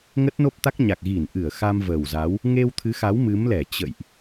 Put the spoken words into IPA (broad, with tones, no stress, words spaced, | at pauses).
ŋə˦˥t̚no˦˥p̚t̪a˦˥k̚ɲa˨˩k̚ ɣi˧˩nʔɨ˧˩ə̯ xa˧mvəː˨˩wza˨˦w | ŋe˧wt̪ʰɨ˨˦xa˨˦w mɨ˨˦mlɛ˧˩ t͡ɕə̰˧˨jʔ